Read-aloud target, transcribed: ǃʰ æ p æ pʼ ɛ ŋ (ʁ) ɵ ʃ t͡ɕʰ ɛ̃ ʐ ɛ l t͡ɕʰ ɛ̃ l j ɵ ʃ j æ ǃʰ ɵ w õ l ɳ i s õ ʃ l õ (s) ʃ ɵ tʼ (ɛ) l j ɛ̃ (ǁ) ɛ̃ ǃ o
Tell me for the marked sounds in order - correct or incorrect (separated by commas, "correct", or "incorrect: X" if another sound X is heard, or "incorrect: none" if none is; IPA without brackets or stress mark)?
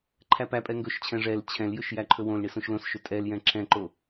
incorrect: ɡ, correct, correct, correct